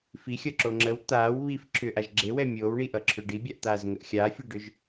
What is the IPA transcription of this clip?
fixʲʌǁo ŋ͡ǁəw t̪aːw βif ǁʰʏʔaʒ ɡ͡ǁewɛ mʲoːwɳiʔʌǁʰʏ ɖibʲaʔt̪aːzŋəʔ xʲaːfʲeɖʏʒ

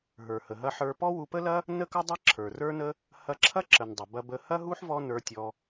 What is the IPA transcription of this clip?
ɦə˞˩hə˩ɦɐ˧ħə˞˧ pɔ˥wu˧pə˥lɐ˥ | nə˥kɐ˥dˤɐ˥ ǁʰə˞˩rə˞˥nə˥ | hɐ˧ǁʰɐ˥ǁə˩n dˤə˩ bɐ˧bə˧ hɐ˥ɦu˥ħ vɔ˥nə˞˧tʲɔ˧

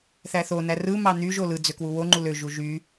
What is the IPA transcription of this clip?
θæθonæ rɯmɑ n̪yʒo lɯ d͡zøkwuwoŋ͡ǃu løʒu ʒy

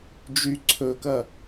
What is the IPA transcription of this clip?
d͡ʒy ǀʰɵkɐ

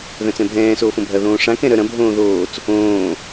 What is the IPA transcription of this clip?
ðœ̃t͡sɛ̃bʱɛ̃ː soːfõbʱɐ ðõːʂã kɛ̃ɾœɾɐ̃ bʱõːðoːt͡s | õː

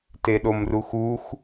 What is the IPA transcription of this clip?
teɗomruxux

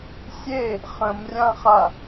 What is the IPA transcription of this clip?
sʲe | χə̃mrʲãχa

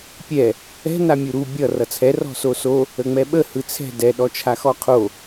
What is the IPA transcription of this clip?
pʲɛ | ɛ̤ namʲuɾu bʲʌ rʌt͡sʰɛ rɔ̤soso | əŋ͡mɛɓə hɯt͡sʰɛ̤ dɛ ɗɔt͡ʃʰaxɔqʰo

